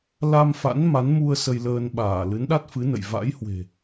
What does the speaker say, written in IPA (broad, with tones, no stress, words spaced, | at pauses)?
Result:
la˧mfa̰˧˥n ma˨˦nmu˧ə̯ sə˧jləː˧nɓaː˧˩ lɨ˨˦nɗa˦˥t̚fɨ˨˦nə̰˧˨j va̰˧˥jhwe̤˨˩